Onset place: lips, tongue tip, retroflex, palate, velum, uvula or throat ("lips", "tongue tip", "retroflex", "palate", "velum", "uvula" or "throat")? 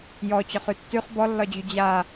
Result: palate